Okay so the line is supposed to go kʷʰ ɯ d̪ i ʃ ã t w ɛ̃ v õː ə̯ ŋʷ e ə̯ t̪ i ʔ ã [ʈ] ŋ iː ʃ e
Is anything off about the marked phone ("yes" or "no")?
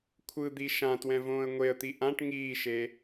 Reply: no